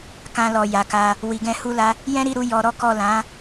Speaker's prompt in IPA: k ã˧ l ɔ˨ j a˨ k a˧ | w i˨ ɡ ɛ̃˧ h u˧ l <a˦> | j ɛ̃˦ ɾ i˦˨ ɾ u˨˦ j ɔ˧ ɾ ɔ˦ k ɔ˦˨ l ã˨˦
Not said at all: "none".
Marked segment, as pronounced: a˧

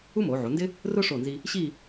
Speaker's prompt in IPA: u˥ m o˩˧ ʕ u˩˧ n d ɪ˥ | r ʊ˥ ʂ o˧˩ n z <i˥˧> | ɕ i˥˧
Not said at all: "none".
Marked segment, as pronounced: i˧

